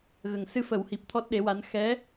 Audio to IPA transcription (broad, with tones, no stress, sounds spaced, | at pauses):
ɣ ə˨˩ ŋ s ɨ˧ f ə˨˩˦ w h i˨˩ p̚ t̪ʰ ɔ˦˥ t̚ ɗ e˧˥ w a˧˥ n x ɛ˧˥